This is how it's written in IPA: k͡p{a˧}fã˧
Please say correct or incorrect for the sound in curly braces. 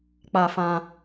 correct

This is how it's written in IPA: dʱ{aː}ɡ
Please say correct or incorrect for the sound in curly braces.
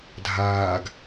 correct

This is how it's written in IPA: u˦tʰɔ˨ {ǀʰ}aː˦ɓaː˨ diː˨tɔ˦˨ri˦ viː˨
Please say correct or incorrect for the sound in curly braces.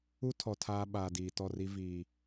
incorrect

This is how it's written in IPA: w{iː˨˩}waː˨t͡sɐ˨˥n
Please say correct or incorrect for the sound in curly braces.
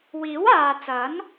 incorrect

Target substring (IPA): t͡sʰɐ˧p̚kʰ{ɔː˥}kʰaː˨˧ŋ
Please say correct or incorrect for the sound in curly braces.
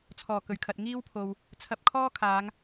correct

